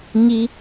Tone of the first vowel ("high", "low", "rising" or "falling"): high